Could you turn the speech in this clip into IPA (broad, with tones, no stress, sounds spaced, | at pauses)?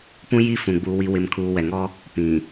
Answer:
p ũ˦ j i˦ f ũ˨ ɡ͡b uː˨ w i˨ w ɪ˨ m kʰ uː˨ w ɛ˨ ŋ ɔ˦ | p ĩ˨